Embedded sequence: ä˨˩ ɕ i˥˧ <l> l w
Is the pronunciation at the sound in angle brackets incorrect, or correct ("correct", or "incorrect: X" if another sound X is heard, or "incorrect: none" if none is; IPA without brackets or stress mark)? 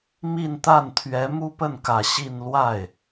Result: incorrect: n